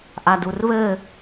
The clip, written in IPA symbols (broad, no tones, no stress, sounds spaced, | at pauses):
ʔ a d u r β ɘ